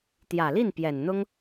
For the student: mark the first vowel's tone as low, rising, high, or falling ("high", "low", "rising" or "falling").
low